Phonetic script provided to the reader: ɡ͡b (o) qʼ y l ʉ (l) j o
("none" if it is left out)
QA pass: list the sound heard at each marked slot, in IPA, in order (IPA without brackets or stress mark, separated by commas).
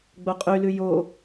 o, none